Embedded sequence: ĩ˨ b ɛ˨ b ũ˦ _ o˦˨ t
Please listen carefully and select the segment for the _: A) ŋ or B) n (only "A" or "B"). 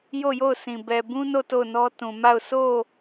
B